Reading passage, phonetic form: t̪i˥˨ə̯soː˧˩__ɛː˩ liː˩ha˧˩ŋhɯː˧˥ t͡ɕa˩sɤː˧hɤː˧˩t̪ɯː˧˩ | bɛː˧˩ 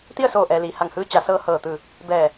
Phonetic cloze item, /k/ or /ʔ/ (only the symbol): ʔ